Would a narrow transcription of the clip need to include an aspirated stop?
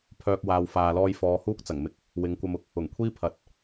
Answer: yes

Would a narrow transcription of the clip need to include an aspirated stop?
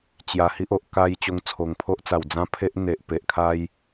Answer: yes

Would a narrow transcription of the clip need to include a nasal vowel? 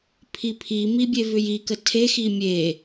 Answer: no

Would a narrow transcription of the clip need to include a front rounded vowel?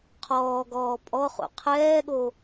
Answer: no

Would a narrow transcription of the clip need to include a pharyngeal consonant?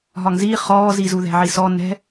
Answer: yes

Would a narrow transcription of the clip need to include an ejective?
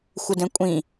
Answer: yes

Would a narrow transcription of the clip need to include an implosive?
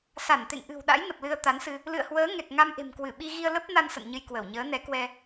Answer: yes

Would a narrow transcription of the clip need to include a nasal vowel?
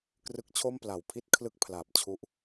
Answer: no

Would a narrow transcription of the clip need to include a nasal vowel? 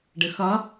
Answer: no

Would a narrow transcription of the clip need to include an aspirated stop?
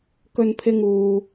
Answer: yes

